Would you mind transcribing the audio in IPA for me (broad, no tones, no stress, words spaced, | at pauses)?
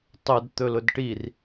tˤɵd t̪ɵlʊdʈir